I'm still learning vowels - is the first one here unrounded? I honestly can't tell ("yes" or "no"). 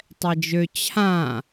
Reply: yes